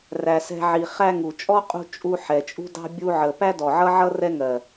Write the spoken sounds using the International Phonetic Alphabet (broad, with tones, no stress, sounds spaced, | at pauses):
r æ˨ s ɛ̤˧ ʕ i˨ χ æ˧ ŋ u˨ t͡ʃʼ ɔ˦ qʼ ṳ˧ t͡ʃʼ u˧ ħ ɛ˨ t͡ʃʼ ṳ˦ d ɑ̤˦ bʲ u˧ ʕ ə˨ p æ˦ d ɔ˨ ʕ ʌ˦ ʕ ʌ˦ r ɛ˦ ŋ ɜ˨